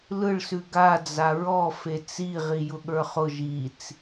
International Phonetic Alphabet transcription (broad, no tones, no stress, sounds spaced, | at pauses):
l ɯ ɭ s ʉ ɡ a d͡z a ɹ ɔ f e t͡s i ʁ i j ʊ ɠ ə˞ χ ʊ ʒ i t͡s